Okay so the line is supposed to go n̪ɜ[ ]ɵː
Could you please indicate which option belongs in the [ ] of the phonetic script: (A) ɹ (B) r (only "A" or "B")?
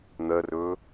B